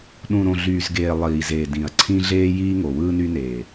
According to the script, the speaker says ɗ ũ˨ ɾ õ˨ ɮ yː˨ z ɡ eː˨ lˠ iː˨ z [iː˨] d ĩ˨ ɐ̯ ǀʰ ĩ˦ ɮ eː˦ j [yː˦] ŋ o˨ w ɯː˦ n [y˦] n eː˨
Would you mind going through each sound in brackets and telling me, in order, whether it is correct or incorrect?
incorrect, incorrect, correct

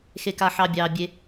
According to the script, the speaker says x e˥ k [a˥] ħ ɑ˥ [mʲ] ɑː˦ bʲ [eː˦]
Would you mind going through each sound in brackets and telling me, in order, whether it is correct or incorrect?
correct, incorrect, incorrect

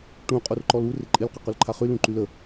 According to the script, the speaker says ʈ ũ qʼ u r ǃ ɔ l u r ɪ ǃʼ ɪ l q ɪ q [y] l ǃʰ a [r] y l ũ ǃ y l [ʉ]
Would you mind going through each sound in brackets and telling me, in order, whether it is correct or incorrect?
correct, incorrect, incorrect

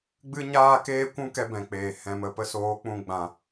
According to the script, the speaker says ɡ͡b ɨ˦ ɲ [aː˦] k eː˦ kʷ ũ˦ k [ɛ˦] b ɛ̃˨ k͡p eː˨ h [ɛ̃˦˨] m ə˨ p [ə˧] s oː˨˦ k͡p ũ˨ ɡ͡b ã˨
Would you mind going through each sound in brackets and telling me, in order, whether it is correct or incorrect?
correct, incorrect, incorrect, correct

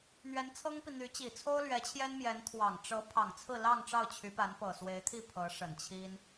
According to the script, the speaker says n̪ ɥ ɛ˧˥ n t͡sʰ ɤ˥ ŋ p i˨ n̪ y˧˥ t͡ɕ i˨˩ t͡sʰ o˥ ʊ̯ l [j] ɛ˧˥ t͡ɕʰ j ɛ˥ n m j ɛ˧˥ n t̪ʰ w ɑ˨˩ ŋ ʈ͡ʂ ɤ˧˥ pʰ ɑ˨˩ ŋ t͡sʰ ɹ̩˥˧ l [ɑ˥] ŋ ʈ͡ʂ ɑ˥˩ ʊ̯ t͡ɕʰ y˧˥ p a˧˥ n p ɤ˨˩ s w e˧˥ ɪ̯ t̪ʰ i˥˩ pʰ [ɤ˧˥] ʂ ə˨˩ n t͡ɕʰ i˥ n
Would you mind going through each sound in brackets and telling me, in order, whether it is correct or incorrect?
incorrect, incorrect, correct

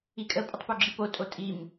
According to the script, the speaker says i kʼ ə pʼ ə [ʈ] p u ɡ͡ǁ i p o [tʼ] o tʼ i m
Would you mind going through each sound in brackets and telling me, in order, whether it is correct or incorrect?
incorrect, correct

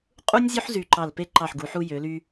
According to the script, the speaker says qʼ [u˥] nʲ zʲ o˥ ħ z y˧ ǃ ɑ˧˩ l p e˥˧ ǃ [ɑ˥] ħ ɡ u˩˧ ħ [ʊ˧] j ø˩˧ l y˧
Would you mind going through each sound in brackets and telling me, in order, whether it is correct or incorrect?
correct, incorrect, incorrect

